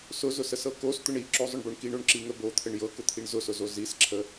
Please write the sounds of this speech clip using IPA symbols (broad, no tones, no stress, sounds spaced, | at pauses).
s ʊ z ʊ s ə s ɤ k o s t̪ ʊ ɳ i ǁ o zˤ ʊ ɳ b o ɳ k i ɳ o ɳ ǁ i ŋ ə b o t̪ʰ ə ɳ j ɤ k ʊ t̪ʰ i ɳ z ʊ s ʊ z o z i s ǁʰ ə